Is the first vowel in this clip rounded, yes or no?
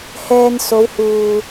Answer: no